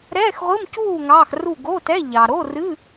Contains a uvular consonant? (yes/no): yes